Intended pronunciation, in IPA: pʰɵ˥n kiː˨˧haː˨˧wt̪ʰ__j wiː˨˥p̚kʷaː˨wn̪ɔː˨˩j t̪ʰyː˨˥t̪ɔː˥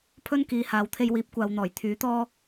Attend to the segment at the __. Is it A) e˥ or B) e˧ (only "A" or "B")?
B